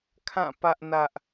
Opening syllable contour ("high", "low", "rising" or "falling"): falling